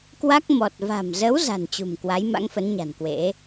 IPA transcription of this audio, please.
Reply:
k w a˦˥ k̚ m ɔ˨˩ t̚ v a̤˨˩ m z ə˨˦ w z a̤˨˩ n t͡ɕ ṳ˨˩ m k w a˨˦ j m a̰˧˥ ŋ f ə˨˦ n ɲ a̤˨˩ n k w ḛ˧˥

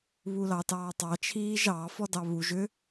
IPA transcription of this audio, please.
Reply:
β u l ɑ t ɑː tˤ ɑ t͡ʃʰ iː ʒ ɑ f ɔ d ɑ β u ʒ ʏ

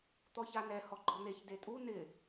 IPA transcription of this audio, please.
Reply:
t̪ ɔ ç a n ɛ h ɔ ɡ͡ǃ ɔ n̪ e ç d e tʼ u n ɪ

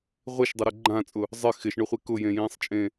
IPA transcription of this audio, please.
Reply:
ʁʷ e ʃ dˤ ɪ ɾ ʊ ɡ͡ǃ ã t͡sʼ ʊ | zˤ ɪ x ɪ ʃ ɳ ʊ χʷ e k ʊ j ẽ j ĩː sˤ t͡ʃʼ ẽ

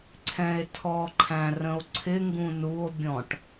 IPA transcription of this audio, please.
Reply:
ǀʰ ɛ̃ e̯ tʰ ɔ ǃʰ æ̃ r ə̃ o̯ ǀʰ ɪ ŋ ɡ ũ n u o̯ bʲ ɔ̃ ʈ

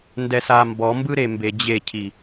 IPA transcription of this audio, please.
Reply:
n d ɛ s a m b ɔ m b ɯ ɾ e m b e d͡ʑ e cʰ i

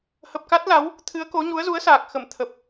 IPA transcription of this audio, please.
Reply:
h ə˨˩ p̚ k a˦˥ t̚ l a˨˦ w | t̪ʰ ɨ˨˦ ə̯ k o˨˦ ɲ u˨˦ ə̯ z u˨˦ ə̯ s aː˨˩ k̚ x ə˧˩ m t̪ʰ ə˨˩ p̚

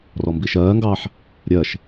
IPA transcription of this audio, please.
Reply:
r ɔ m b i ʃ ɜː ŋ ɡ ɑː ħ | ɾʲ ɜ ʃ

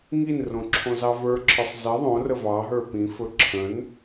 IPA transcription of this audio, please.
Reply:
ŋ i n r õ ǁʰ õ z ɑ v ə˞ ǁʰ ə˞ sˤ z ə ðˤ õ r ə v ɑ ɦ ə˞ p ĩ f ɵ ǁʰ ə̃ n

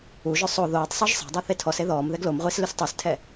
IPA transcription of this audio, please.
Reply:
u ʒ ɵ sˤ o ð oː tˤ sˤ ø ʒ sˤ æ̤ dˤ ɛ θ e tʰ ɔ s e ð ɔː m ð ɛ ɡ l o m ʁʷ i s l ʉ s tˤ ʉ s tʰ ɛ

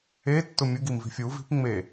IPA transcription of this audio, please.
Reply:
e tː ʊ mʲ u ɡ i m v i̤ fʲ u v i̤ p ŋ͡m e

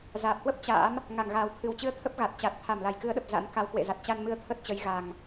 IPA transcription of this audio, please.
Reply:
z aː˨˩ p̚ h w ə˦˥ p̚ t͡ɕ a̰ː˧˥ m | ŋ a˧˩ ŋ ɣ aː˨˩ w t̪ʰ ɨ˨˩ w t͡ɕ ɨ˧ ə̯ t̪ʰ ə˦˥ p̚ ɣ a˨˩ t̚ t͡ɕ a˨˩ t̚ t̪ʰ a˧˩ m l a˧˩ j k ɨ˨˦ ə̯ ɗ ə˨˩ p̚ z a̰˧˥ n k a˨˦ w k w ḛ˧˨ z a˨˩ t̚ t͡ɕ a˧ n m ɨ˧ ə̯ t̪ʰ ə˦˥ t̚ t͡ɕ ə˨˦ j ɣ a˨˩ ŋ

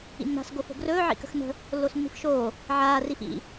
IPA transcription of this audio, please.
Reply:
ḭ nː a̤ s ɡ o f o̤ ɡ r ɵː ʕ ḭ k ə̤ x n ə̤ | lː o s nː i̤ f ʃ oː | ʕ aː r i f ḭ

